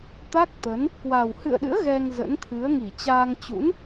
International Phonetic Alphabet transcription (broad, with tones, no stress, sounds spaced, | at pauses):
t̪ a˦˥ k̚ t̪ ə˨˦ n | k w a˨˩ w h ɨ̰˧˨ ə̯ ɗ ɨ̰˧˥ ə̯ ɣ ɛ˧ ŋ z ə̰˧˥ n t̪ʰ ɨ˨˦ ə̯ ŋ i˧˩ t͡ɕ aː˧ ŋ t͡ɕ ṵ˧˥ n